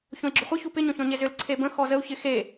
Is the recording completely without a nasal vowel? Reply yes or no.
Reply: no